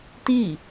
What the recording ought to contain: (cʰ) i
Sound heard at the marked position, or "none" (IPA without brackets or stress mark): t